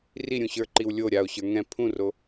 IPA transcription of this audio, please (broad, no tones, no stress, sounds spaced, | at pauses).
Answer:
r i ɾʲ ũ ɕ ə˞ ǃ i w lʲ o ɾʲ a o̯ ɕ ə˞ ŋ ɛ̃ pʰ ũ r o